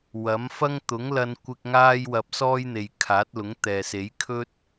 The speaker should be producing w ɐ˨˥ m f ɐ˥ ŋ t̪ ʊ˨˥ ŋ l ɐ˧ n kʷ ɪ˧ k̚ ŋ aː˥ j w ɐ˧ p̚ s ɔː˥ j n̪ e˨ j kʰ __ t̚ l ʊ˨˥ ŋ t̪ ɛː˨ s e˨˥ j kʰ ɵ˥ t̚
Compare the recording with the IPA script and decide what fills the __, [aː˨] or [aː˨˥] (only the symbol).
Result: aː˨˥